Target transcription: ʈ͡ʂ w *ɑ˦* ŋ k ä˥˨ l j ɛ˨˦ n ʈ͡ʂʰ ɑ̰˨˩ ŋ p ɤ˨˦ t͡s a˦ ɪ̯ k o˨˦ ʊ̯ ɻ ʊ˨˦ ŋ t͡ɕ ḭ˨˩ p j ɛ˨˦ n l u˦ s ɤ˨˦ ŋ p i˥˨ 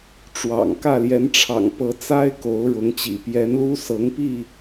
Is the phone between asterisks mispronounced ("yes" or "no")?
yes